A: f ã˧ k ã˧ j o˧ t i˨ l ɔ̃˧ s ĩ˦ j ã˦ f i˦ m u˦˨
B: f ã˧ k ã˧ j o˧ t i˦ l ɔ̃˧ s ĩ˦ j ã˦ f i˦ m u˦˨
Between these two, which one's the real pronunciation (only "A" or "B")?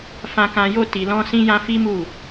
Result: A